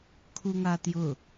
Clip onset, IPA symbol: kʰ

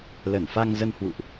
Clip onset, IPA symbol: l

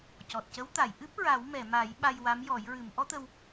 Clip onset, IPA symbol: c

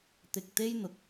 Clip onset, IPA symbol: t̪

